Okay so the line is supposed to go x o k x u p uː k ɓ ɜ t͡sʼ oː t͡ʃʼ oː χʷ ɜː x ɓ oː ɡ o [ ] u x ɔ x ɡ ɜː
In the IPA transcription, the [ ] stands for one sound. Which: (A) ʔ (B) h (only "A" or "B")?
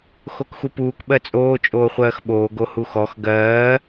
B